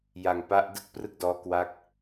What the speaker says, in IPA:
j a˧ ŋ p a˦˥ ʔ d ɯ˥˩ k̚ p r ɯ˥˩ k̚ d ɔː˦˥ k w a˦˥ k̚

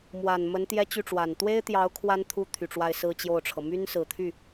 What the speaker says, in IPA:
m w a˨˩ n m ə˧˥ n t̪ j ɛ˥ t͡ɕ y˥˩ ʈ͡ʂ w a˨˩ n t̪ w e˥ ɪ̯ t̪ j ɑ˧˥ ʊ̯ kʰ w a˥ n t̪ʰ u˥ t̪ʰ y˨˩ ʈ͡ʂ w a˥˧ ɪ̯ s ɹ̩˥˧ t͡ɕ j o˥˩ ʊ̯ ʈ͡ʂʰ ɤ˩ m y˥ n s ɹ̩˨˩ t̪ʰ y˥˩

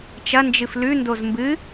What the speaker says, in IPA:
t͡ʃ ɐ n d͡ʒ ɨ f l ʉ n d o z m b ɨ

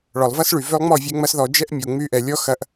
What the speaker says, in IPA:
ɭ ɔ˨ lˠ v ɐ˦ s ɭ y˨ v ø˧ lˠ ŋ͡m ɔ˦˨ vʲ ɛ˦ ŋ͡m ɐ˦ s ð ɔ˧ d͡ʒ ɛ˦ ʔ mʲ o˨ ŋ͡m y˧ ʔ ɛ˨ lʲ ɔ˦ x ɐ˧ ʔ

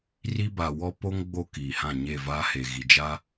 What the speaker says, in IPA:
r i˦ b a˨ w ɔ˦ p o˦ ŋ ɡ͡b o˦ k iː˨ h ã˦˨ ɲ e˦˨ v aː˦ h e˨ ɣ i˨ d͡ʒ a˦

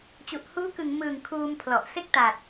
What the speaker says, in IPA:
t͡ɕ u˨˩ ʔ h uː˦˥ k ɯ˨˩ ŋ m ɯː˨˩ ŋ kʰ uː˧ m pʰ l ɔ˨˩ ʔ s e˦˥ k̚ t a˨˩ t̚

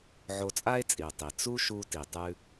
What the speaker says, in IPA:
ʕ o˧ t͡sʼ a˥ e̯ t͡sʼ i˩ o̯ tˤ i˩ t͡s u˥ ʃ u˧ t i˩ tˤ ʉ˧

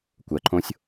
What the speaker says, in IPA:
kʷ ɜ ǃʰ õ sʲ

